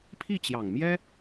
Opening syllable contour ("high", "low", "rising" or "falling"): falling